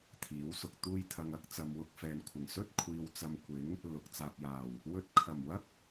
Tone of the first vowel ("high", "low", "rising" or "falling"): rising